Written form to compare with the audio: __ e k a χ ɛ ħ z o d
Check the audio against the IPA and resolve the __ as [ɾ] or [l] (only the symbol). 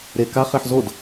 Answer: ɾ